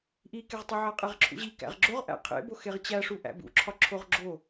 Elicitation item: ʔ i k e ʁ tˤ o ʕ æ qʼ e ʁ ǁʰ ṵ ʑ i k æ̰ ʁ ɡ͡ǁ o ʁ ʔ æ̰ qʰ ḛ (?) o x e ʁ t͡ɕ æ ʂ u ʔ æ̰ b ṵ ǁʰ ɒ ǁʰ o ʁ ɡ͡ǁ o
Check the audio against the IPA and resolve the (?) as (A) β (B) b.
B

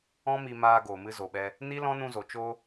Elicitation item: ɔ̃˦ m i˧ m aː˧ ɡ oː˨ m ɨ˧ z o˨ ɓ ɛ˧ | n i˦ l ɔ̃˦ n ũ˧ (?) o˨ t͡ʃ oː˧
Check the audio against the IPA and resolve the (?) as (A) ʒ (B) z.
B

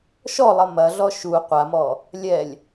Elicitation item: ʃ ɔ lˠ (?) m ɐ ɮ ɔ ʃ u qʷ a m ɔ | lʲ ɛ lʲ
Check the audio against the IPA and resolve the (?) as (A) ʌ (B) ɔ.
A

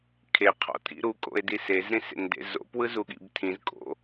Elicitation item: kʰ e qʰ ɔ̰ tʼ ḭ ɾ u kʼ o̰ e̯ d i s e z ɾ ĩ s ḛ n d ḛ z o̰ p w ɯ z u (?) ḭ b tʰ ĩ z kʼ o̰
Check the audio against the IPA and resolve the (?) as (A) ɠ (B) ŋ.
A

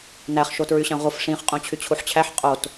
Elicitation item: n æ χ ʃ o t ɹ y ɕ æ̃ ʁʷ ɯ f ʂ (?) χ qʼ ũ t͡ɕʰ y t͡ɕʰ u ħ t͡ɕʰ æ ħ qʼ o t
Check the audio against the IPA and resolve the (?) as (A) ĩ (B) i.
A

